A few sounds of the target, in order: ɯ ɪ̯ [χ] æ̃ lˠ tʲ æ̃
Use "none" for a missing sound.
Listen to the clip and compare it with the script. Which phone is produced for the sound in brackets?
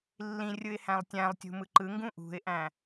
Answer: h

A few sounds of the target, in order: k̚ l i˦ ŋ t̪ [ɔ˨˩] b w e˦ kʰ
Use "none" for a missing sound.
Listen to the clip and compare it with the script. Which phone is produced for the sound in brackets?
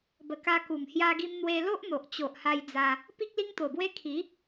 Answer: o˨˩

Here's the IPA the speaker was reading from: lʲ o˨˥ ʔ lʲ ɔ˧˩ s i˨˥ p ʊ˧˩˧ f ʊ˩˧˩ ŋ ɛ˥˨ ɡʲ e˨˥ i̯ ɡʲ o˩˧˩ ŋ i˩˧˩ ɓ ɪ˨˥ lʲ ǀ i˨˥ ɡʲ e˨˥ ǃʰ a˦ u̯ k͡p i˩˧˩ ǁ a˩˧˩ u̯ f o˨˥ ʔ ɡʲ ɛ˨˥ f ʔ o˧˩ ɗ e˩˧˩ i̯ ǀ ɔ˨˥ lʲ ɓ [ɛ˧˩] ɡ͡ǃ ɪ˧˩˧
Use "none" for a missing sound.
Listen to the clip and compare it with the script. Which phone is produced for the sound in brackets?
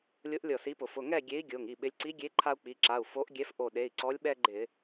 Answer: ɛ˦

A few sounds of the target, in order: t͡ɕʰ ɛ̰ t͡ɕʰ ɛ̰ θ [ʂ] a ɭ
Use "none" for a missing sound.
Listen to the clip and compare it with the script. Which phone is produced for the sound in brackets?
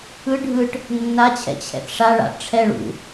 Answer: ʂ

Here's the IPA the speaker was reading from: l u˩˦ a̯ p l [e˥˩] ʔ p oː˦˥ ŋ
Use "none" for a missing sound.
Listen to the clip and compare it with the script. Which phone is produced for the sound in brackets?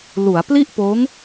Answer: i˥˩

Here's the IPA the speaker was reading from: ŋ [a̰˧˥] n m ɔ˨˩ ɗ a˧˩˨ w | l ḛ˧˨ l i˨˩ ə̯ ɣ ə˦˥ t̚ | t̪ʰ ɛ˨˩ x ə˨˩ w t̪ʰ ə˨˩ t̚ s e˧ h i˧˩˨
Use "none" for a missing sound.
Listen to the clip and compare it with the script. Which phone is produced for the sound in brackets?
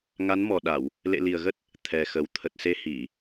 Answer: a˨˦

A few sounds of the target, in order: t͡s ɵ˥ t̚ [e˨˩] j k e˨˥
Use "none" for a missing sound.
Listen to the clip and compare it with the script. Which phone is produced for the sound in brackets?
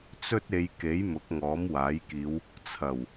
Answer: e˨˧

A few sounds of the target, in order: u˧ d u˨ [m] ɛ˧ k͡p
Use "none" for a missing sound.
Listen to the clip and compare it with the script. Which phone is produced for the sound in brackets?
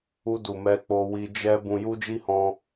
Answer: m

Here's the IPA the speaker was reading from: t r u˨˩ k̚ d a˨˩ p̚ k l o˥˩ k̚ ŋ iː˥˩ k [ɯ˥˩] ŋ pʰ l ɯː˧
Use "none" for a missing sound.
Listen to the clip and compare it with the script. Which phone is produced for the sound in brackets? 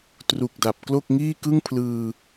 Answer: ɯ˥˩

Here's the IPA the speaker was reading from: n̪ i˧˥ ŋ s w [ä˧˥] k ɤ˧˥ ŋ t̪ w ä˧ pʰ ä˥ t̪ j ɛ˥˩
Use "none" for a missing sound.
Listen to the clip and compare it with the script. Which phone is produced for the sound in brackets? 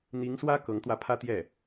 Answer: ä˥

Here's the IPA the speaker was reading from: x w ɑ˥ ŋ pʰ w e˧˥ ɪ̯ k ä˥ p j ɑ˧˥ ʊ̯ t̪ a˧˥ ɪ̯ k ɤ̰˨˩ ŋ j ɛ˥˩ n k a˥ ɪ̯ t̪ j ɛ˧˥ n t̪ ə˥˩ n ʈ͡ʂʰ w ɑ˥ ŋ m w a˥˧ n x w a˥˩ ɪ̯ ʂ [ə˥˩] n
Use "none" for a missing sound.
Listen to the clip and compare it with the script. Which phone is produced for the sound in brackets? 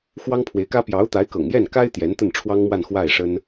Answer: ə˥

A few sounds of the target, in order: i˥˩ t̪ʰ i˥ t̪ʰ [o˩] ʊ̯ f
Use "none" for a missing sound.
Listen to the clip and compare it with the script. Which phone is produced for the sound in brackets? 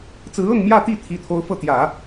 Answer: o˥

